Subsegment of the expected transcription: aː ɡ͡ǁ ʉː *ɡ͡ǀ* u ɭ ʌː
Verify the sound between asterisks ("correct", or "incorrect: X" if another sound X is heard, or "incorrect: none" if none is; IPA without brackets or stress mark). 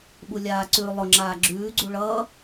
correct